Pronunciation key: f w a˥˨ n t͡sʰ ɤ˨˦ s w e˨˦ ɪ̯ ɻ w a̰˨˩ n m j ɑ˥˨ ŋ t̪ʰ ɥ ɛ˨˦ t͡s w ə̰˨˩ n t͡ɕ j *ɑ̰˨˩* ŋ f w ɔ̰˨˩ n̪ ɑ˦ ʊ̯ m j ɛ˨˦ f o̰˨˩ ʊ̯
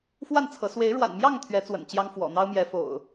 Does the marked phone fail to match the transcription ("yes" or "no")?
yes